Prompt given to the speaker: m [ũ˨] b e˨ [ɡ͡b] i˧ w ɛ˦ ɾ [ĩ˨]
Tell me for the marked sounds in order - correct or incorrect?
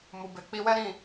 incorrect: u˨, incorrect: k͡p, incorrect: ĩ˦˨

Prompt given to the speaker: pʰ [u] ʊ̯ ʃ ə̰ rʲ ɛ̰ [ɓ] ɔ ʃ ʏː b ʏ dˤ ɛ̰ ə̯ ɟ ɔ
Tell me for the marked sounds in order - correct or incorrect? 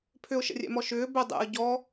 incorrect: ʏ, incorrect: m

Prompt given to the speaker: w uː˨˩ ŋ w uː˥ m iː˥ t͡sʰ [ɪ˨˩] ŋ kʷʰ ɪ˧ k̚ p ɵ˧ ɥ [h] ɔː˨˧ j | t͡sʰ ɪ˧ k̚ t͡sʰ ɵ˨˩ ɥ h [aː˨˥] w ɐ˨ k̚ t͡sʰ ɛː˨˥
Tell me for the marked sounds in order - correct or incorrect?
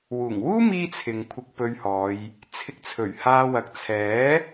incorrect: ɪ˨, correct, incorrect: aː˧

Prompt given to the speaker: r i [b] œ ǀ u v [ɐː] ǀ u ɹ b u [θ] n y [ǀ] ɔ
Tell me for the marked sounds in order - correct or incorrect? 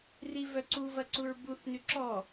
incorrect: v, incorrect: ɐ, correct, incorrect: ǁ

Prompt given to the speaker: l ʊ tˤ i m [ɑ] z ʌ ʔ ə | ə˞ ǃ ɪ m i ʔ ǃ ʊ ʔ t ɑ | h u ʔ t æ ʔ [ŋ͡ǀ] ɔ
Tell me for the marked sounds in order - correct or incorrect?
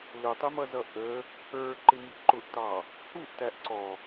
incorrect: ʌ, incorrect: ǀ

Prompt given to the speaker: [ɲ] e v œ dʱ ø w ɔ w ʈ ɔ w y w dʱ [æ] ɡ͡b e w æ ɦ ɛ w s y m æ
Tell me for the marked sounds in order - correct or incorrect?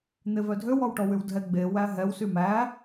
incorrect: n̪, incorrect: ɛ

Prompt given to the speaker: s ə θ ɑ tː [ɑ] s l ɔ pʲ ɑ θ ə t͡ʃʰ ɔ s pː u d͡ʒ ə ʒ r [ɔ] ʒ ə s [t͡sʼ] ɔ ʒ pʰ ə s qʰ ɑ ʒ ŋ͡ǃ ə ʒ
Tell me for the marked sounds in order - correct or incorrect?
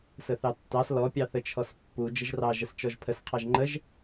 correct, incorrect: ɑ, incorrect: t͡ʃ

